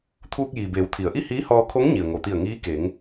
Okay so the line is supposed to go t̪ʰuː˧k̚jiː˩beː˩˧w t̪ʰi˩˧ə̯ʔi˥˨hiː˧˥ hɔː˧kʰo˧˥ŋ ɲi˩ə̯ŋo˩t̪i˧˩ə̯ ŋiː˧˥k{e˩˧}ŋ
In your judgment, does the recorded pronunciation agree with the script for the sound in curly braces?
yes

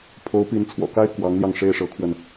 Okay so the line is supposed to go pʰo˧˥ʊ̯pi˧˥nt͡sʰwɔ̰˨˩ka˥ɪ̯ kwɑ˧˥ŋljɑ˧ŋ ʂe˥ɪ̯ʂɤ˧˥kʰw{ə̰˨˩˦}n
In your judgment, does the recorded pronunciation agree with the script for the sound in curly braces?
no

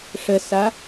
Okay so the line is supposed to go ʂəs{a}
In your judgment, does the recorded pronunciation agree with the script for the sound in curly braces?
yes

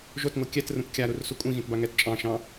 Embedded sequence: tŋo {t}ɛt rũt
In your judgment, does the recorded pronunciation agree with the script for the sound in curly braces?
no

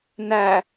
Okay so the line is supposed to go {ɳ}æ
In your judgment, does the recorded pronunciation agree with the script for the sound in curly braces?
no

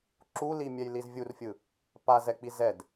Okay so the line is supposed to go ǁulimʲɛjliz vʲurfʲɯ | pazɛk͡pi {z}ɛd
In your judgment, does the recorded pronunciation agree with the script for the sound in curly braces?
yes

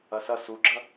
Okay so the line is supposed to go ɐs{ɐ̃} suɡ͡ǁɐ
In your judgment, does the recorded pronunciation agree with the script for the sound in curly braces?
no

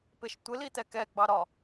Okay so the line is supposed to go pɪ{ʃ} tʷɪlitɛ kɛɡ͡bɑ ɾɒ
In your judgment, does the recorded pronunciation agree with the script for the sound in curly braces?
yes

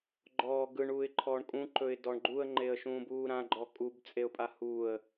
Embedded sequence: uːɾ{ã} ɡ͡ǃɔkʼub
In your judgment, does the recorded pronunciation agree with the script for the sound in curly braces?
yes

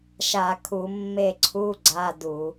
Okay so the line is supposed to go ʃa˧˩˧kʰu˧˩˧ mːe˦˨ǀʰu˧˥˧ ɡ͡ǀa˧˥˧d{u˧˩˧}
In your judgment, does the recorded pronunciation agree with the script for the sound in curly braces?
yes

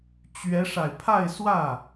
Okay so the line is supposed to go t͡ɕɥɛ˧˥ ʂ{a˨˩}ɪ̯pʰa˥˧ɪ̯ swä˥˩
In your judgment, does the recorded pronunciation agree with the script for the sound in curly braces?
yes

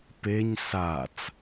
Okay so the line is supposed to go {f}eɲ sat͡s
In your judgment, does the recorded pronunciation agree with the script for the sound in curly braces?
no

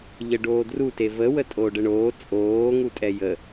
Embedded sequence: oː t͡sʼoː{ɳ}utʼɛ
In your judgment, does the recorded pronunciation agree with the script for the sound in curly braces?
no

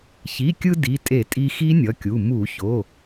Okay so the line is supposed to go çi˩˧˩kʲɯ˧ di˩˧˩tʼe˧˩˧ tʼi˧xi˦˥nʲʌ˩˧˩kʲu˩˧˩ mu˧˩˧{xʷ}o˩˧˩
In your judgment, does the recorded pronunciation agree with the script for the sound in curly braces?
no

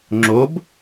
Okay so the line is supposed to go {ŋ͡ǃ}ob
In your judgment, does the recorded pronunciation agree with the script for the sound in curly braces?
no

